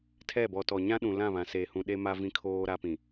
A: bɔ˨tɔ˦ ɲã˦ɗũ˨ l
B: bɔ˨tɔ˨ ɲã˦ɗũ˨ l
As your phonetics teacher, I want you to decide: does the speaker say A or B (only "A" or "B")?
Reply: B